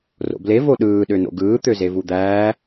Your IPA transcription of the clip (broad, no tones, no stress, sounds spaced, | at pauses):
r o̰ b l e v o ɗ ɯː ɗ ø n o̰ ɡ ɯː t̪ ø z e v u d̪ æː